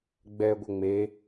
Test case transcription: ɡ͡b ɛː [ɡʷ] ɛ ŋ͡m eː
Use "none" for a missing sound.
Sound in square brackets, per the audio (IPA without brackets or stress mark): ɡʷ